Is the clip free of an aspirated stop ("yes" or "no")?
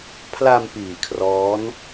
no